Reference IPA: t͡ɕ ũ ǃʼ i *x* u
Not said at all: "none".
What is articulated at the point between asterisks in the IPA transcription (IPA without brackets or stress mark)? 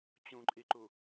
ǃ